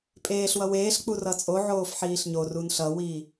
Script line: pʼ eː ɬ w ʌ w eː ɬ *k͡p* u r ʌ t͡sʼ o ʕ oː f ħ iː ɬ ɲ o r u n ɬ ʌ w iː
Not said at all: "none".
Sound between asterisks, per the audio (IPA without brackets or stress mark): k͡p